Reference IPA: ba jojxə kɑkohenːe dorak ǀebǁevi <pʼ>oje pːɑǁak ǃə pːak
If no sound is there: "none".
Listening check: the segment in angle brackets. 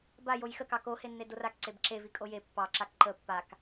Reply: kʼ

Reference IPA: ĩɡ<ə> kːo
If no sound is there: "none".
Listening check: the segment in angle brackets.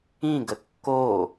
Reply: ə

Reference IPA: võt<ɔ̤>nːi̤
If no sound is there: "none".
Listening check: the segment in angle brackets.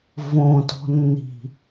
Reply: ɔ̤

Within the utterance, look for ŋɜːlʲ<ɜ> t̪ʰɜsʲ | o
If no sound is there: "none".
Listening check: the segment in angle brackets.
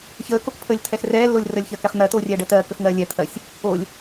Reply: ɛ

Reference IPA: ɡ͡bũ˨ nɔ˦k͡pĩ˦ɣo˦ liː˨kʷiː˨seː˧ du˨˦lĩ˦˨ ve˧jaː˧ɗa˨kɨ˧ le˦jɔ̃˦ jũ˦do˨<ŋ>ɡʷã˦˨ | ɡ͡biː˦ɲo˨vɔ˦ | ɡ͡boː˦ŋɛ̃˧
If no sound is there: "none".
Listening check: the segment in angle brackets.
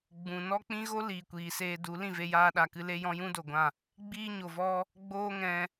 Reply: none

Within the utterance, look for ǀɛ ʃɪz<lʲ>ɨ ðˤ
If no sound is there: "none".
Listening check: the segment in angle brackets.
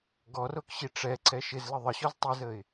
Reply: l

